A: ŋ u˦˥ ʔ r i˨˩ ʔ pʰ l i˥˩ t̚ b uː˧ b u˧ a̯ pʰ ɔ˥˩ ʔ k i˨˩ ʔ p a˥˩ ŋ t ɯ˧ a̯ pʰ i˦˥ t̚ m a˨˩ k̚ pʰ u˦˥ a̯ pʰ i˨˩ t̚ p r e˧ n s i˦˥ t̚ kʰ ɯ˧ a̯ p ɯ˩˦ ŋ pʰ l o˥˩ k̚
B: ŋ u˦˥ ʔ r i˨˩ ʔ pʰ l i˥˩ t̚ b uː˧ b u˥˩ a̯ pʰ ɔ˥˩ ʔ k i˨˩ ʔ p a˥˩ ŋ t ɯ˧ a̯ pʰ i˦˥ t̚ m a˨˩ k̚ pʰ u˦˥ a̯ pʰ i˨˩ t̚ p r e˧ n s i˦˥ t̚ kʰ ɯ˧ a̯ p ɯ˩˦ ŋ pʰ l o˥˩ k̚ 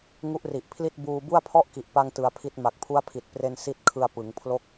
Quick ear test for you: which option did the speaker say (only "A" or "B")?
B